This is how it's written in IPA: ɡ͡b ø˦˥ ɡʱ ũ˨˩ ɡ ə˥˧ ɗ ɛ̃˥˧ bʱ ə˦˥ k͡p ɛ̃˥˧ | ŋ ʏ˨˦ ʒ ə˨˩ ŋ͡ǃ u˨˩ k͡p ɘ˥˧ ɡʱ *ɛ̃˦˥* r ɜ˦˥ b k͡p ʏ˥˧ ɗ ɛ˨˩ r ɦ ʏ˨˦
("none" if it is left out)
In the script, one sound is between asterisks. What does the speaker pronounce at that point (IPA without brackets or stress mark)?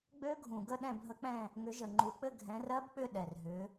ɛ̃˨˦